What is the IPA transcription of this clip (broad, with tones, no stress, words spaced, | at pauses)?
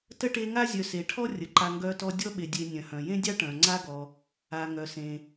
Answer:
tə˥ʈe˦ ŋa˥zʲœ˨se˩ʈʰɔ˥ rʲə˩ǃa˨ ŋɡœ˦tɔ˦ dʲɔ˥ ɓe˨ dʲe˨ nʲœ̃˩hœ̃˩jẽ˥dʲɑ˥ ʈœ̃˩ŋ͡ǀa˥ɡɔ˨ | a˩ ŋœ˩sẽ˩